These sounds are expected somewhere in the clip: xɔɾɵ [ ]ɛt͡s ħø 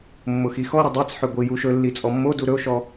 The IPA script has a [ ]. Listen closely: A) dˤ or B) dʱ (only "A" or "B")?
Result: A